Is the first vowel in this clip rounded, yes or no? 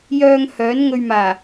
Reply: yes